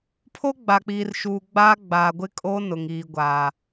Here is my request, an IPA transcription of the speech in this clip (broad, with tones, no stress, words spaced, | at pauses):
pʰo˦ɡ͡ba˨k͡piː˨rʃuː˨ ɡ͡ba˦ ɡ͡ba˨ɡʷɪ˦kʼo˦ nʊ˨ŋiː˨ɡʷaː˨